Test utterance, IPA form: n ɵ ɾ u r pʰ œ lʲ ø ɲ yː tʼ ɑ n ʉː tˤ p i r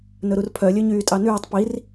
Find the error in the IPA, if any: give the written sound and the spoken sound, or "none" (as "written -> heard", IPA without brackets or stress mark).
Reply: none